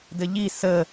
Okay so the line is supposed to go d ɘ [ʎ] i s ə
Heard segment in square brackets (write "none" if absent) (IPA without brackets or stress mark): ʎ